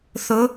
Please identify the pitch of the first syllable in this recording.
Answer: rising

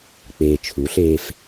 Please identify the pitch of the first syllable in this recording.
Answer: low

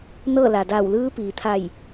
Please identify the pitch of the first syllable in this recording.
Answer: falling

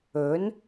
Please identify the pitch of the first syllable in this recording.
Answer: rising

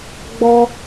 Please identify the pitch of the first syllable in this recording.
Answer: high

